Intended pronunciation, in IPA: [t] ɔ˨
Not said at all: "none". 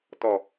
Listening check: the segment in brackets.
t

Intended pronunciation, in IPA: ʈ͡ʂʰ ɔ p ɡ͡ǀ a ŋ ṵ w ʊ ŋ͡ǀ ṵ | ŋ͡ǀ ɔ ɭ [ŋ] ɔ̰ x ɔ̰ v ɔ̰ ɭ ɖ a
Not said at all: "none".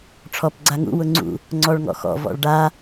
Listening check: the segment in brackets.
ŋ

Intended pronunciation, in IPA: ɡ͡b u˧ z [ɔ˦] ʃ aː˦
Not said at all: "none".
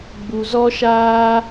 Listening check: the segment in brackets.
ɔ˦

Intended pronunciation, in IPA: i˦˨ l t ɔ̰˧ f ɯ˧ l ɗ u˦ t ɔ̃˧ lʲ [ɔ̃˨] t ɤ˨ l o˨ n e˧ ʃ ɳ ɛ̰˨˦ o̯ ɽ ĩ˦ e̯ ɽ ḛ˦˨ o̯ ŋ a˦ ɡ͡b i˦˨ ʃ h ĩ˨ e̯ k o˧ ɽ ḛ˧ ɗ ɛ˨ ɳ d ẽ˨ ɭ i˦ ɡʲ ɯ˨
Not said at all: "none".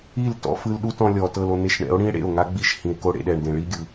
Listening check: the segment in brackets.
ɔ˨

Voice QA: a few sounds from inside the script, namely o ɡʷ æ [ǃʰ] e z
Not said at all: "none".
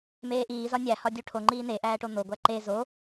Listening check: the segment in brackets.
ǃ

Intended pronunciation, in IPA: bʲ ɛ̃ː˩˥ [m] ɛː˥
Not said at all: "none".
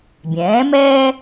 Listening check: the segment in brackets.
m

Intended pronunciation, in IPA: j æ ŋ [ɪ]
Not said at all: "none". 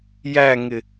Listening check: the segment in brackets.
ɪ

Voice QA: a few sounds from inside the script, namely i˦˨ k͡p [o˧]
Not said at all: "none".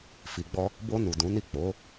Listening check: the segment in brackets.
o˨˦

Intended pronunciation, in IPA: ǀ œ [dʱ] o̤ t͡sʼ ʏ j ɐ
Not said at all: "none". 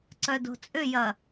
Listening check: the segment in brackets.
d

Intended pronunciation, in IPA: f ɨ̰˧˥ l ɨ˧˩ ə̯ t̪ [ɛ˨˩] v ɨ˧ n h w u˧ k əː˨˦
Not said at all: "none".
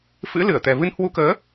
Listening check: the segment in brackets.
ɛ˨˩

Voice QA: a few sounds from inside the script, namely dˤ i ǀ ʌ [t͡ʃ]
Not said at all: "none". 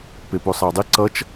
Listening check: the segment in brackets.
t͡ʃ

